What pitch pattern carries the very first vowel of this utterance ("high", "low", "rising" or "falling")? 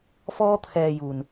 high